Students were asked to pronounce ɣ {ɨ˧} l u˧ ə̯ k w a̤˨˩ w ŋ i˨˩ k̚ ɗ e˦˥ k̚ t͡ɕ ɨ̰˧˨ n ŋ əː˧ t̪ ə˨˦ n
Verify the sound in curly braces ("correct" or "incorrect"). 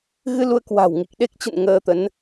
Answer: correct